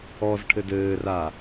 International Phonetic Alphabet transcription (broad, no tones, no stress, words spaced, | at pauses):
ɔzʈʰɘ dɘːra